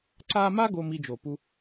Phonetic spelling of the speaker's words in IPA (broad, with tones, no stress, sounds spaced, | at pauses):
ǀ a˦ m a˥ ɡ o˥ m i˦ d͡ʒ o˨ p u˦